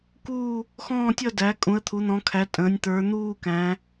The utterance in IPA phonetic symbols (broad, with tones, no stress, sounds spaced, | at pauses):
k uː˥˧ | x ɔ̃ː˥˧ tʲ ʌ˥˧ d æ˨˦ kʼ ũ˨˦ ə̯ t̪ʰ u˨˦ n̪ ɔ̃˨˦ kʰ æ˨˦ tʼ ə̃ː˨˦ nʲ t̪ ə˞˨˦ n̪ uː˥˧ k æ̃˨˦